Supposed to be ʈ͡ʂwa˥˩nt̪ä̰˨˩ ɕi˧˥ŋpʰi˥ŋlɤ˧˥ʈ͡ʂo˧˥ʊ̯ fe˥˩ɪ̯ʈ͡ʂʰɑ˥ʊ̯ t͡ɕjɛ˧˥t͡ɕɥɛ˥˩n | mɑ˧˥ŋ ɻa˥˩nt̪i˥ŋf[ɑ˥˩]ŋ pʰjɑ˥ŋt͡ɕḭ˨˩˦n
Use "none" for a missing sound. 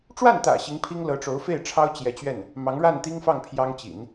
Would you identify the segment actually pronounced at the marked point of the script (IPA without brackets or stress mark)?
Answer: ɑ˥˩